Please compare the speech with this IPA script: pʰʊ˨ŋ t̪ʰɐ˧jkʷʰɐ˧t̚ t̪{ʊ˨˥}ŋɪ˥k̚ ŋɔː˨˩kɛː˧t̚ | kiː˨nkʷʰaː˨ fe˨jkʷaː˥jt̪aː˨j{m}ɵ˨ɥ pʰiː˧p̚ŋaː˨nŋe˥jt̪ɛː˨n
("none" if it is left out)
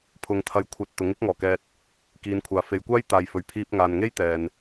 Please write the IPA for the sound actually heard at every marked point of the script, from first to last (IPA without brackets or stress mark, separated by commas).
ʊ˨˥, f